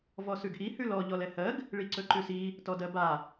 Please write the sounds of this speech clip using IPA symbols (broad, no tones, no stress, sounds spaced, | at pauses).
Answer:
v ɔ s ʉ ɡ ʔ i h ʉ l ɔ ʎ ɔ l ɛ h ɜ ɡ | ɭ i ǀ ɵ ǃ ʉ s i | t ɔ d ɜ b a